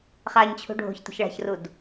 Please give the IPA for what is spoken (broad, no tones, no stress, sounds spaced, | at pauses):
χ a ɲ t͡ɕʰ ṳ ɖʱ o̤ ç t ə̤ ç ɭ a̤ ç r u d